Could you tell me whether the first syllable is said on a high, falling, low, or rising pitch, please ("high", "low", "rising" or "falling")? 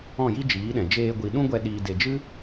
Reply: falling